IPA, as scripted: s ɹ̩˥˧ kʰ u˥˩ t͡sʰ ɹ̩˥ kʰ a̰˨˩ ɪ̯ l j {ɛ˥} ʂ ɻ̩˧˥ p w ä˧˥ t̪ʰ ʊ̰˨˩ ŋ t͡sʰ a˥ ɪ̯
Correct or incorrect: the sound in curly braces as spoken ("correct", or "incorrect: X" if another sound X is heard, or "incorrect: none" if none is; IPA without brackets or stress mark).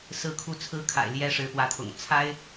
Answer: correct